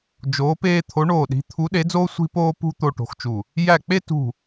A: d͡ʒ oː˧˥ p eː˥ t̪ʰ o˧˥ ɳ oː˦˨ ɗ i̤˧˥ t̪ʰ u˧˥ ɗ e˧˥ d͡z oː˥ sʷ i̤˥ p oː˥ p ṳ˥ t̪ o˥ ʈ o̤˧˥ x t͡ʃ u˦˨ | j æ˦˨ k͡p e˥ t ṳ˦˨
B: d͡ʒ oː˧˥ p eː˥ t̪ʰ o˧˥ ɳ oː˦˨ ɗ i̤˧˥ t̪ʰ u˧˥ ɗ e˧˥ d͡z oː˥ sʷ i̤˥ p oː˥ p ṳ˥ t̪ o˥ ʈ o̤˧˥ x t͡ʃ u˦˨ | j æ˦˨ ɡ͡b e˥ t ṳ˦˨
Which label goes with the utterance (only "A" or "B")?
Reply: A